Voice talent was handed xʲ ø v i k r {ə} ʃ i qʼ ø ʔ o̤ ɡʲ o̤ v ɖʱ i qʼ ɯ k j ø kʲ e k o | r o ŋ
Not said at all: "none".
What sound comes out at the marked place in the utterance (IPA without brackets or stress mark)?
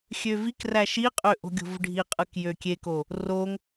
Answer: æ